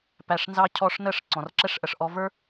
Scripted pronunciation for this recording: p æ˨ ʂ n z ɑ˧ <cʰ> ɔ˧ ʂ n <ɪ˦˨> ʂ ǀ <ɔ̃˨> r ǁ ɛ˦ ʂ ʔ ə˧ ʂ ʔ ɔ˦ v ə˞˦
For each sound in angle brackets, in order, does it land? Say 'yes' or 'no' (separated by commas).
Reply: yes, no, yes